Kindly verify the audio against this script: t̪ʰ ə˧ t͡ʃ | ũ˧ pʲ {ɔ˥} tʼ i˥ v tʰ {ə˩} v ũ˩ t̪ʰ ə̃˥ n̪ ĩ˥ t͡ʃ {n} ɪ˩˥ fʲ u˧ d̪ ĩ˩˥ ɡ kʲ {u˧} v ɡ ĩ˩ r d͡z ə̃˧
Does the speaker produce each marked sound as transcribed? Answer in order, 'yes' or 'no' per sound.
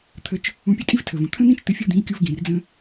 no, yes, no, yes

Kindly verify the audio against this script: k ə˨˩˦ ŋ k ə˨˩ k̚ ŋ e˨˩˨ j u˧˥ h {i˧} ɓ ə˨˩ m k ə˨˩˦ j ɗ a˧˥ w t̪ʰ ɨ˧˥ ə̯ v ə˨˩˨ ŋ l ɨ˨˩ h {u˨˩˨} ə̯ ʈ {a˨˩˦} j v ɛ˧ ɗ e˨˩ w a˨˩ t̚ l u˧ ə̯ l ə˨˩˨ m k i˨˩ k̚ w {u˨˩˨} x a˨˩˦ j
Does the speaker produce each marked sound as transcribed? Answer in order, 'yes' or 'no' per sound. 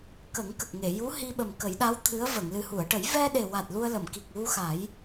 yes, yes, no, no

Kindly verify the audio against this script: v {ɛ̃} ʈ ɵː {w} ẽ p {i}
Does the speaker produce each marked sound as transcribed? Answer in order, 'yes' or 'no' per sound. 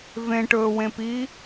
no, yes, no

